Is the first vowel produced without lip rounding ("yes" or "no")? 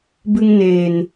yes